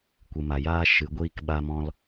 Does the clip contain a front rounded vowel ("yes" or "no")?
no